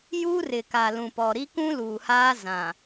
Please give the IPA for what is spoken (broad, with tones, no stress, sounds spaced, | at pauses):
j u˦ r ɪ˨ k a˨ l ũ˨ p ɔ˨ ɾ i˦ k ũ˦ l uː˨ h aː˦ z ã˨